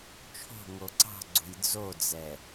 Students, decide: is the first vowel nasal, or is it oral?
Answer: oral